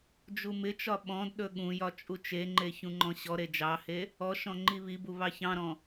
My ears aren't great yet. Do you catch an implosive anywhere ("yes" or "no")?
yes